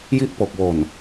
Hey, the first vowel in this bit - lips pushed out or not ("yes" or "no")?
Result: no